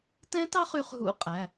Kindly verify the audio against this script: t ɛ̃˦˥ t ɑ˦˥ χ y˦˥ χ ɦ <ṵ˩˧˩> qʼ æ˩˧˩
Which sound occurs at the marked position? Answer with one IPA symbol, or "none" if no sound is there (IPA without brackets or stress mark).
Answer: ṵ˦˥